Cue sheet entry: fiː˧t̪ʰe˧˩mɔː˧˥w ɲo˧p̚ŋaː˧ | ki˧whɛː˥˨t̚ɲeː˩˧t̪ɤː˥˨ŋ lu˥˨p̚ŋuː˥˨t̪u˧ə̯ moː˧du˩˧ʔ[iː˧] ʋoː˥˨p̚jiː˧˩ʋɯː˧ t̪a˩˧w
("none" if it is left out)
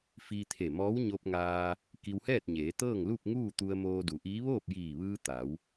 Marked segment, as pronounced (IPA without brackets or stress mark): iː˧˥